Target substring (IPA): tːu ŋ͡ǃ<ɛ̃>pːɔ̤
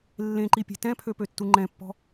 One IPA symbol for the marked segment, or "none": ɛ̃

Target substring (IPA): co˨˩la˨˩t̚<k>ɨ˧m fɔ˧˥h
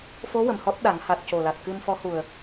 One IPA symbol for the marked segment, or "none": k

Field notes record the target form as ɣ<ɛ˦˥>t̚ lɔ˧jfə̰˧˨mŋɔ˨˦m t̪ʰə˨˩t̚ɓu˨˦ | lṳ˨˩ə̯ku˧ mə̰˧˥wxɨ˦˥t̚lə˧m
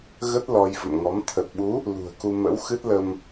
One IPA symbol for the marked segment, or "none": ə˦˥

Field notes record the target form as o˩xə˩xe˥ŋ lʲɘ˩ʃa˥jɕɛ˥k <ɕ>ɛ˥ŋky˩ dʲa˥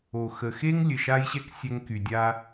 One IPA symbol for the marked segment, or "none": sʲ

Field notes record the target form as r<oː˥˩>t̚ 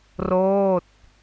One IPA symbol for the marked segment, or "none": oː˥˩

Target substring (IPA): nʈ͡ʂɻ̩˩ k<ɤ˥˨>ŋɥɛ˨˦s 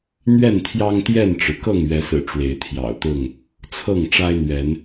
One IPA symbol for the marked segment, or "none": ɤ˥˨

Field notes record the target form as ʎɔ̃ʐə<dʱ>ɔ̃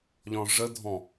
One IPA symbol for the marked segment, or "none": dʱ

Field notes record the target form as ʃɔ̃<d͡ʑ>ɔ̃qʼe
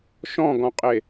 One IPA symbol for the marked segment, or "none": ɡ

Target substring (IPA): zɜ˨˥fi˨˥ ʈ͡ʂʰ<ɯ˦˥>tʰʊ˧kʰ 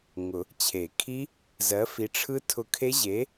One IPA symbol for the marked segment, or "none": ɯ˦˥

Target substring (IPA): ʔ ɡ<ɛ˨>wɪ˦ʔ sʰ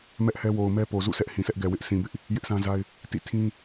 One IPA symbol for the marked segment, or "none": ɛ˨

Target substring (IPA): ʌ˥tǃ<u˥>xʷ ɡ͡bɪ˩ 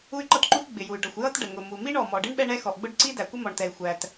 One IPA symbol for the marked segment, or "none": u˥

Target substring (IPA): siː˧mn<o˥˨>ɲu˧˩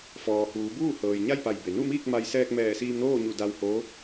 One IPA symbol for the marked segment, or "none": oː˥˨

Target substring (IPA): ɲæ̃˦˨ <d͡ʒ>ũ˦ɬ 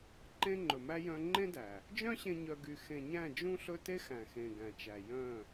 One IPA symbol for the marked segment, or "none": d͡ʒ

